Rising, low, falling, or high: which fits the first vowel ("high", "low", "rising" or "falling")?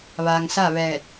low